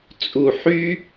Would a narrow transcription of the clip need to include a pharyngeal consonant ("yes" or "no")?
yes